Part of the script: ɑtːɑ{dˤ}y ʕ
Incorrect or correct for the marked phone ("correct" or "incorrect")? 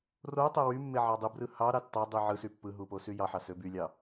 correct